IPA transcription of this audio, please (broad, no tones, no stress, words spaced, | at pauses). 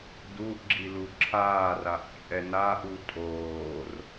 duʔɡ͡ǁi luǁʰaːraʔ t͡ʃʼɛnaʔu tʼoːr